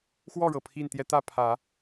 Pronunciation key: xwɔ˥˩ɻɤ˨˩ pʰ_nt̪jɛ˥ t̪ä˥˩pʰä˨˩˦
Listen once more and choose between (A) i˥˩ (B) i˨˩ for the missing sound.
A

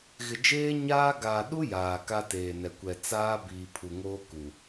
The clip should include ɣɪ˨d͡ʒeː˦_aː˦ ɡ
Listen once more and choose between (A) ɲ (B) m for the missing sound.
A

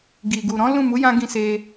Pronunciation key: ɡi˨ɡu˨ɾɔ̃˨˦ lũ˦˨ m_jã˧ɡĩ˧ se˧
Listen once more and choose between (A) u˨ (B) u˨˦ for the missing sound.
B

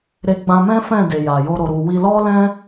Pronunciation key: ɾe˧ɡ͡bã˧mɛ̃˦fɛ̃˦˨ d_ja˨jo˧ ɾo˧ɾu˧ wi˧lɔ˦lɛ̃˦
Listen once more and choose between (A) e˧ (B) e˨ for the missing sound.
B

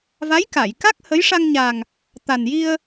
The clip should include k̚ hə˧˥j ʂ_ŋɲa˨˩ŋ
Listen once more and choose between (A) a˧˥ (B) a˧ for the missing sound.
B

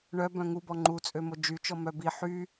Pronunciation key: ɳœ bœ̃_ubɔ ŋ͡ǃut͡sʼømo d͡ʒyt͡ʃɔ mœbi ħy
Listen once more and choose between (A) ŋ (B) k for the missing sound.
A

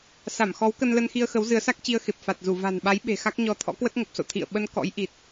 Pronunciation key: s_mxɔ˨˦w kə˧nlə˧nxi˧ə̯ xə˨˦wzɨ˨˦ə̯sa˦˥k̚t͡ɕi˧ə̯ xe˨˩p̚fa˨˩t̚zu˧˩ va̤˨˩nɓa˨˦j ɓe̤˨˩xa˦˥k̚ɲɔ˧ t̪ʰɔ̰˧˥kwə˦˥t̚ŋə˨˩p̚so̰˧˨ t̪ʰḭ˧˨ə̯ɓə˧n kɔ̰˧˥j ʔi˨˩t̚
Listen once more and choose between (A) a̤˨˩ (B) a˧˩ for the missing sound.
B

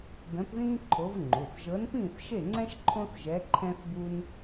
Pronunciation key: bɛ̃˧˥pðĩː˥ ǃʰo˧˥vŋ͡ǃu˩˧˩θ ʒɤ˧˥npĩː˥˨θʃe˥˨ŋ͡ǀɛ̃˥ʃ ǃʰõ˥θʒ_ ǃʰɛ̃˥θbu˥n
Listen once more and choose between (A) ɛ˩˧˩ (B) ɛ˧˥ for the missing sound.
B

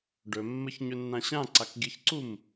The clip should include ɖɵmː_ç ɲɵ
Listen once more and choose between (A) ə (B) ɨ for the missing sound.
A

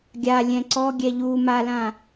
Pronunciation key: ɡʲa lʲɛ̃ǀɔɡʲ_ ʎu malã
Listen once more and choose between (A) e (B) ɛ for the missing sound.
B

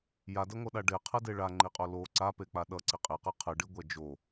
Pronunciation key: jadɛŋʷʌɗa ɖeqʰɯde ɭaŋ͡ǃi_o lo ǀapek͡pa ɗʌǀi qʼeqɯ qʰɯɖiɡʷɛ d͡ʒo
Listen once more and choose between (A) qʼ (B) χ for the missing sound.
A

